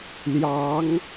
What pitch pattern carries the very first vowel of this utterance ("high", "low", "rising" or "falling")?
rising